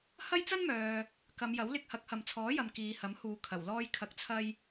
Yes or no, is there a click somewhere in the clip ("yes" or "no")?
no